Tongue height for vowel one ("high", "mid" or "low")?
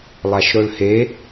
low